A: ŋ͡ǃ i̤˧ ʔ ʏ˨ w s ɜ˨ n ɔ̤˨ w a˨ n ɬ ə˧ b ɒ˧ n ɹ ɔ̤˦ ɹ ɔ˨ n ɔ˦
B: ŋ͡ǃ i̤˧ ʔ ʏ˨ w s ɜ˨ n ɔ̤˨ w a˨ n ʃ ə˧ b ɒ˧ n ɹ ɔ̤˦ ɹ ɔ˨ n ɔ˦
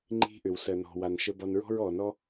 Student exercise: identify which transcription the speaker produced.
B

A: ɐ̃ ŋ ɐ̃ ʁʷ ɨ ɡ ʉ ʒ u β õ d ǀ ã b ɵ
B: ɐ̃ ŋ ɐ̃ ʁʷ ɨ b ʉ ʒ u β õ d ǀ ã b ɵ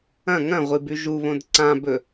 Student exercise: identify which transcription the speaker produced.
B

